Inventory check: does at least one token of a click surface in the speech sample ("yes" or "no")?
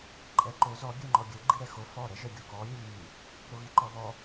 yes